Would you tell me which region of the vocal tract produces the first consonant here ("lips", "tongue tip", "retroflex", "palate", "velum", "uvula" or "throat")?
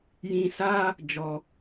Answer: palate